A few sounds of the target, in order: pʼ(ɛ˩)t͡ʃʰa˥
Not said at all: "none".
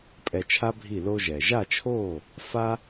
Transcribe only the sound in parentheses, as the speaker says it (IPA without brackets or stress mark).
ɛ˧